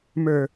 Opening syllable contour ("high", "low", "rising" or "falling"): low